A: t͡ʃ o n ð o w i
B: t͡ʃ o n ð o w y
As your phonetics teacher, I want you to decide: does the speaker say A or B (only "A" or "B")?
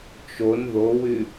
B